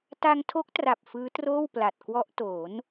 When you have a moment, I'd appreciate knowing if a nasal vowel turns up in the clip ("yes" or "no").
no